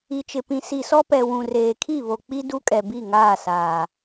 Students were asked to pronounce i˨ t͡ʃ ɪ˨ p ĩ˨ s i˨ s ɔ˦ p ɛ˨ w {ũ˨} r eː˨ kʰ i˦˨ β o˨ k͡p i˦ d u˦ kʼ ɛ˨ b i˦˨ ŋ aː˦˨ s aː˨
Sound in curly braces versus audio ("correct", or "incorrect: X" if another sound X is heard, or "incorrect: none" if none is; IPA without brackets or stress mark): correct